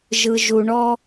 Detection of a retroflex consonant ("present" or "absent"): present